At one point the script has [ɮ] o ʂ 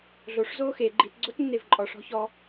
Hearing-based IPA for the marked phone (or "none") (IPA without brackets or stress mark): ɮ